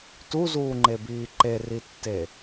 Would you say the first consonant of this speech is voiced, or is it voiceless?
voiceless